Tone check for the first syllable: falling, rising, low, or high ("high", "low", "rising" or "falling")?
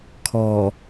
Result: low